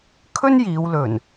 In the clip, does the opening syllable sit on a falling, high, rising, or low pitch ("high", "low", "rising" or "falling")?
high